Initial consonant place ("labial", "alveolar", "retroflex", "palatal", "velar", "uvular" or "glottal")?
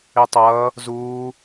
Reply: alveolar